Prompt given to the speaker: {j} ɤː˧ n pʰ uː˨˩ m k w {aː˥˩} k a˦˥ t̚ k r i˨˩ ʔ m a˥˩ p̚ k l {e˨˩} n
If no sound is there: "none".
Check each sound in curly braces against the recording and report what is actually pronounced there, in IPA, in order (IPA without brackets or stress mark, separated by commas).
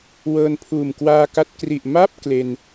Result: w, aː˧, e˧